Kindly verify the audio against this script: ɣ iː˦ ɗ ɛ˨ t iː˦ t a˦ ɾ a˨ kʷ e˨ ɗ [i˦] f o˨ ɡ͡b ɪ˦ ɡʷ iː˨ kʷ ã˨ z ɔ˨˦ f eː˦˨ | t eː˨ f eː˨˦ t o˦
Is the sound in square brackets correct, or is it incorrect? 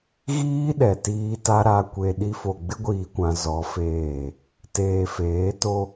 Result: correct